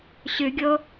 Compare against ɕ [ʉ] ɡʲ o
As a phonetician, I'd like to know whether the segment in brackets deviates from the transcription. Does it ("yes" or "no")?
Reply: no